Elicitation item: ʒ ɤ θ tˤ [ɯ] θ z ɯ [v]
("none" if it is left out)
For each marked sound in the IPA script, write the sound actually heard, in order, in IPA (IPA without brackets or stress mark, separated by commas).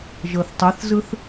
u, θ